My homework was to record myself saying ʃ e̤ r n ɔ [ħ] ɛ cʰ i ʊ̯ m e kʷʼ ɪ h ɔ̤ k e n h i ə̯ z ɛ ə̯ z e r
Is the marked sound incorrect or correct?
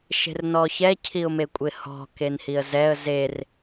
incorrect